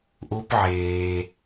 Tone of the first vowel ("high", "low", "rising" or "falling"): high